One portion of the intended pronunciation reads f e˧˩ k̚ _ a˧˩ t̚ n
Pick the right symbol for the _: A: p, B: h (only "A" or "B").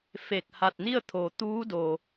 B